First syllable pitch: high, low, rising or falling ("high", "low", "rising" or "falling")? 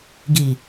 low